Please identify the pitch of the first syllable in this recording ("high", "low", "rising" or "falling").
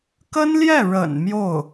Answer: high